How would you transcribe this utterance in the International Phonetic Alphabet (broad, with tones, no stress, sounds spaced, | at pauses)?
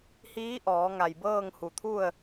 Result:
h iː˧˥ ʔ ɔː˩˧ ŋ a˧˩ j b ɤː˥˨ ŋ h u˧˩ t̪ʰ u˥˨ ə̯